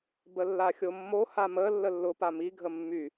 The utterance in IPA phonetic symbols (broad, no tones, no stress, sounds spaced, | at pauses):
b ə lː a xʲ o mː o h a m ə lː ə lː ʊ p a m i ɡʱ ə mː y